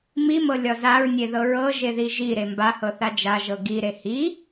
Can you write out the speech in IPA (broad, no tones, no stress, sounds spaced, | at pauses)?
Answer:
m i m ɤ lʲ ɒ z a ɹ nʲ e ð ɤ ɹ ɤ ʒ e ð i ʒ i ɾ e m b a h ɤ θ a d͡ʒ a ʒ ɤ ɡ i ɾ e h i